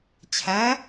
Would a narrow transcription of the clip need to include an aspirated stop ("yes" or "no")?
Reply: yes